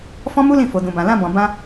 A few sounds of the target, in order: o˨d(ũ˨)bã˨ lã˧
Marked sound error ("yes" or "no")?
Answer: no